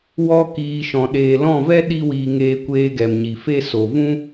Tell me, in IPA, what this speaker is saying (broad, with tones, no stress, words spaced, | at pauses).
wɔ˧ kiː˨ ʃɔ̃˨ ɗeː˨lɔ̃˦˨vɛ˦ ɗi˦wiː˧ ŋeː˧kʷeː˧ ɡɛ˨mɲi˨fe˦ so˨vũ˦